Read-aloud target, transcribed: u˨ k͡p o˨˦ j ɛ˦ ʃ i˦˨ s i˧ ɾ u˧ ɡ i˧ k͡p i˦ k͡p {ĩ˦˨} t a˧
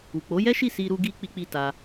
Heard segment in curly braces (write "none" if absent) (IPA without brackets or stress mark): i˦˨